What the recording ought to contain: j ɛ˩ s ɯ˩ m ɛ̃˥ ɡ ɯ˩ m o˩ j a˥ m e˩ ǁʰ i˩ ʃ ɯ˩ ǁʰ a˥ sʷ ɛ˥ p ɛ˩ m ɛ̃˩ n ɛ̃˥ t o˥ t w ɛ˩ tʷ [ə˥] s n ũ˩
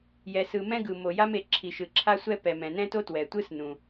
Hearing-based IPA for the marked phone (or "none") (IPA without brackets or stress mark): ɯ˥